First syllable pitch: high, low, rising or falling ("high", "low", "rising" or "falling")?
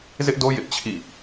high